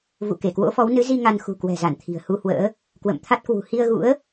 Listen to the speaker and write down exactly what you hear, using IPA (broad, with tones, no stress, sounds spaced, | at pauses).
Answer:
v ṵ˧˨ k e˧˩ k w o̰˧˥ f ɔ˨˦ w n ɨ˨˦ z i˧ ŋ a˧ n x ṳ˨˩ k w ɛ̤˨˩ z a˧˩ n t̪ʰ i̤˨˩ ə̯ h u˧ h w ə̰ː˧˥ | k w ə̰˧˨ m t̪ʰ a˦˥ t̚ k w ṳ˨˩ h i˧ ə̯ ɣ ṵ˧˥ ə̯